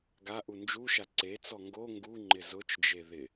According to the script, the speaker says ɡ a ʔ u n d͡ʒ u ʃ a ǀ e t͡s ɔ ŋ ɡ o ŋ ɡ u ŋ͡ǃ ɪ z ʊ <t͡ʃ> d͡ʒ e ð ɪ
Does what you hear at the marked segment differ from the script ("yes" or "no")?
no